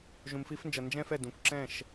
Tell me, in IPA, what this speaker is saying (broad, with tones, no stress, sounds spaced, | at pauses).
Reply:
ʒ ũ˨ m f i˧ f n d͡ʒ ʌ˨ n d͡ʒ ɛ̃˦ f ɛ˦˨ d ũ˨ kʷ ǁ ɛ̃˦˨ ʃ